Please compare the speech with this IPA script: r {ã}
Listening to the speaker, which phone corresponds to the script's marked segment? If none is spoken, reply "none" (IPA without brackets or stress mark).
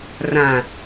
ã